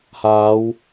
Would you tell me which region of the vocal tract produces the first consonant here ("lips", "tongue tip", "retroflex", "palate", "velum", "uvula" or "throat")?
throat